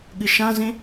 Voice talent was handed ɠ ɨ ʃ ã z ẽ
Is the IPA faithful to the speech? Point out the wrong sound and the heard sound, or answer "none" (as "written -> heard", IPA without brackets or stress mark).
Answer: none